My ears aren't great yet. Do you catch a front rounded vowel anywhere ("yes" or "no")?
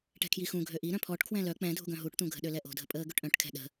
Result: yes